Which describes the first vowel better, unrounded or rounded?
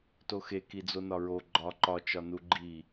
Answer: rounded